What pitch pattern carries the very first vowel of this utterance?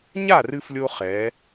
falling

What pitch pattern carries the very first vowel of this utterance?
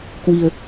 low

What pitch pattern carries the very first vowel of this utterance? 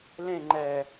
falling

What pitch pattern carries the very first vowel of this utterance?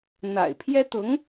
low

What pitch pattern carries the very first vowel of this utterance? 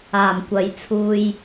low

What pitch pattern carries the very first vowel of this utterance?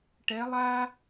rising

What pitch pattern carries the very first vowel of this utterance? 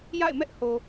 falling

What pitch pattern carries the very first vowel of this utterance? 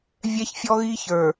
high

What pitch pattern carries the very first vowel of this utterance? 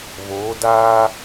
rising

